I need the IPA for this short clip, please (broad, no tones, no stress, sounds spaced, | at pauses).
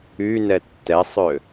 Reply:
y n ɛ tː ɛ sˤ ø